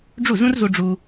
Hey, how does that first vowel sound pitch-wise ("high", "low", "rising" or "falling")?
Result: falling